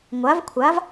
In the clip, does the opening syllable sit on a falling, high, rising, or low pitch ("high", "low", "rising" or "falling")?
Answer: rising